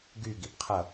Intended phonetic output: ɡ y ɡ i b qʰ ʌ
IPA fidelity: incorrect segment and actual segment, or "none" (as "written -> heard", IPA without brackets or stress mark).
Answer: none